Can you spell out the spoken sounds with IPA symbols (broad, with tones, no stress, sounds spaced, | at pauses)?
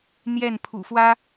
n̪ j ɛ˥˨ n pʰ ṵ˨˩ f w ä˦